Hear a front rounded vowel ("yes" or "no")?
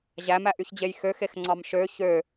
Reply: yes